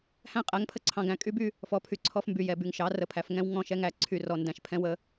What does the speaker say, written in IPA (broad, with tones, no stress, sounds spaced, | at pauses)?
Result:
h æ̃˦ qʼ æ˨˦ ŋ pʰ ə˦ ǀʰ ɑ̃˨ ɡ æ̃˨ kʼ y˦ b y˦ | f ɔ˨ pʰ y˨ ǀʰ ɔ˦ f m b y˨ j ɛ˨ b y˨ ŋ ʃ ɑ˨˦ r ə˨ pʰ æ˨ f ŋ ɛ̃˦ w ŋ ɔ̃˦˨ ʃ ɛ˦ ŋ æ˨ ǀʰ y˨ r ɔ˨ n d æ̃˨ ʃ pʰ ɛ̃˦ w ə˦